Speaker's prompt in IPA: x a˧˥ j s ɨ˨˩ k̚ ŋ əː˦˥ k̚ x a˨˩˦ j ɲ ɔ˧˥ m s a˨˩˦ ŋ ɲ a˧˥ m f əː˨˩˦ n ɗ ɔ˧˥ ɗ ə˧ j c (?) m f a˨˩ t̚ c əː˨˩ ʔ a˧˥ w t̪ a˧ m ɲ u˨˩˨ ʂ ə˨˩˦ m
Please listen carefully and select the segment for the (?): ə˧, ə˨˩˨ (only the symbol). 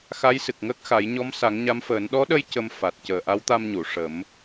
ə˧